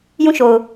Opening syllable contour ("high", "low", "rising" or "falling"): falling